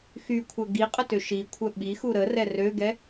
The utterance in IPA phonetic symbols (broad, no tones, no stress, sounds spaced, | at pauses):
x y kʷʰ œ ɡ i qʼ ə t ø ʃ i kʷʰ œ ɓ i x u ɾ ə r ɛ r ø ɡ ɛ